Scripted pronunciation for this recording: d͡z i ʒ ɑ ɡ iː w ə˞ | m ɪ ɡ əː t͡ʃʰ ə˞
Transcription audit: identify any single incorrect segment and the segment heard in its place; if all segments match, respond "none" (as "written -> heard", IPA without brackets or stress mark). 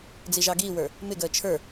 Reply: none